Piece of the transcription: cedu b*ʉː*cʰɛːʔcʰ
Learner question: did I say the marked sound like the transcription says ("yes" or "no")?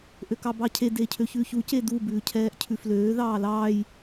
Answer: yes